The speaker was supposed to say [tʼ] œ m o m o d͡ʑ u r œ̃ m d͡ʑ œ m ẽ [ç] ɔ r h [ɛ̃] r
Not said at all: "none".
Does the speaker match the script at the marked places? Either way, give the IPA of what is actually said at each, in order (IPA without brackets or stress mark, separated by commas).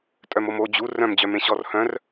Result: tʼ, ɕ, œ̃